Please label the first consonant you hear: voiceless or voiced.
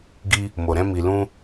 voiced